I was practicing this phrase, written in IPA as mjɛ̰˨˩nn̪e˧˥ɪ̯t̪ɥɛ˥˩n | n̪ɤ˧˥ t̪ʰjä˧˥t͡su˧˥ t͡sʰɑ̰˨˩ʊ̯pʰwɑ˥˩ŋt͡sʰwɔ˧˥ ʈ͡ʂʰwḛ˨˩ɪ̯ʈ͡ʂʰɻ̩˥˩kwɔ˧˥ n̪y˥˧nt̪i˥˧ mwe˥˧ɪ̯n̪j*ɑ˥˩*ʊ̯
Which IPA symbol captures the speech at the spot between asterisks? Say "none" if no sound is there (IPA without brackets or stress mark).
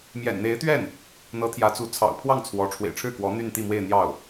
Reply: ɑ˥˩